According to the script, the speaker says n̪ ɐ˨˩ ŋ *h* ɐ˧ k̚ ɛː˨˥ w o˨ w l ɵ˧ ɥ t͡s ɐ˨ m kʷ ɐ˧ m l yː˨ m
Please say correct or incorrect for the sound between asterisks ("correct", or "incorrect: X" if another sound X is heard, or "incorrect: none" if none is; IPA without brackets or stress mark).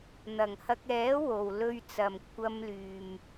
correct